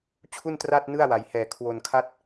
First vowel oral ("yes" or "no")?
yes